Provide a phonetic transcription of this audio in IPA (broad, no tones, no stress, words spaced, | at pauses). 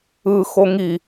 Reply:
ɯxo ŋi